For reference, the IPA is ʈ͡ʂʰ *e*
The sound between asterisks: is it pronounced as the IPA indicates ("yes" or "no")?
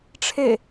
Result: yes